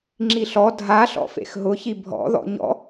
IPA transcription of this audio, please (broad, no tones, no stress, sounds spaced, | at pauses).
ŋ͡ǁ i ɬ ɔ dʱ a ɬ ɔ̰ f ḛ x ɦ ʊ ç i bʱ ɔ̰ ð ɔ̰ ɲ ɔ̰